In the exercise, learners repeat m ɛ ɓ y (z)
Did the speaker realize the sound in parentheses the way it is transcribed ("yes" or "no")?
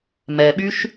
no